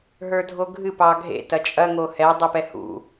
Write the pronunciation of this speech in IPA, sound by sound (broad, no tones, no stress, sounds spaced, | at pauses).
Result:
ɦ ə˞ dʱ o ɡʱ ɨ p ɑ ɡʱ ḛ t ɐ t͡ʃʼ ɐ ŋ o h ɛ dˤ ɨ p ɛ h ṵ